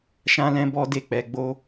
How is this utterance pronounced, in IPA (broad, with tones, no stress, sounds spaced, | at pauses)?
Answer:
ʃ ã˦ l ɛ̃˦ b ɔ˦ d e˦˨ k͡p ɛ˧ ɡ͡b o˦